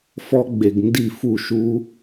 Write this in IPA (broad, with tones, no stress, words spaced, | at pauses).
fɔ˦˥ɡ͡be˨ɡ ndi˥˩fu˥˩ ʃu˦˥